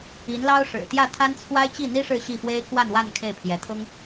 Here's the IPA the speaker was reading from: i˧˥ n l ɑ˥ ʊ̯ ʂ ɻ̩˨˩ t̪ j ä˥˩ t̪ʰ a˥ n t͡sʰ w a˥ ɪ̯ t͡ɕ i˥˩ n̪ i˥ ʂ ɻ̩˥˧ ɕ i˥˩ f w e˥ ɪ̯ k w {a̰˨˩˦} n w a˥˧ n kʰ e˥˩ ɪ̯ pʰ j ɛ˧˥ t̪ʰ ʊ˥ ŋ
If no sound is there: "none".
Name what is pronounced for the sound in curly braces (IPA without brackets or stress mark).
a˥˧